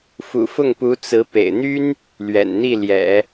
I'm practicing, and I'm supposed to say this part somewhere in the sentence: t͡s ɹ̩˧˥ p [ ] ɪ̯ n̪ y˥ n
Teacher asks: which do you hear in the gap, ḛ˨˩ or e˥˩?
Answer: ḛ˨˩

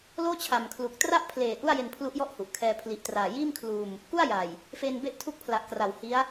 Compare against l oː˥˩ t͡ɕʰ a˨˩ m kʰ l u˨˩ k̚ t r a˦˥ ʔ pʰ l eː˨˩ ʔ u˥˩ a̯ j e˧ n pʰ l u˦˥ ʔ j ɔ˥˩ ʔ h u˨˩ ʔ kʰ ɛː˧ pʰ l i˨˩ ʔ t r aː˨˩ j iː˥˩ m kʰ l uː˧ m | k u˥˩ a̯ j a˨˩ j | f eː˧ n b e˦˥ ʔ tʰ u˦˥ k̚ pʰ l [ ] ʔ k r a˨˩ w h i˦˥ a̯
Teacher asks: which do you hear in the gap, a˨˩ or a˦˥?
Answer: a˨˩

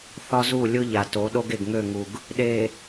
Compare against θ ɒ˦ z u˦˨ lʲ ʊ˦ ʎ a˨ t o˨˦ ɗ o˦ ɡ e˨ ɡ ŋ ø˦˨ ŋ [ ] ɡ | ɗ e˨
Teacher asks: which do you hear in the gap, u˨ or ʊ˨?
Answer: u˨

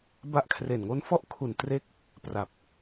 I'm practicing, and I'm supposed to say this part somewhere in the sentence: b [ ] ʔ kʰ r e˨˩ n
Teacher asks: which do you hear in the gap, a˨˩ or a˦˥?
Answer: a˦˥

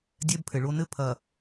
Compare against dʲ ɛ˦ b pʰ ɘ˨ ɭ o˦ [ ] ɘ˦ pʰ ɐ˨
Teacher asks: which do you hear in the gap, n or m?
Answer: n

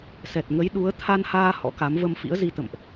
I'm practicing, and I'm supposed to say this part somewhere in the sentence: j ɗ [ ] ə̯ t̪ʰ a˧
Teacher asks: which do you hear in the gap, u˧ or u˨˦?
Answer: u˨˦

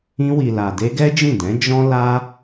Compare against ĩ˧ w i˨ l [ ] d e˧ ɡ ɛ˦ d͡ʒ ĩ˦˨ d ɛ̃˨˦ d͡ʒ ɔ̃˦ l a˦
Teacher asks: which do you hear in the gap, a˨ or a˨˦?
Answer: a˨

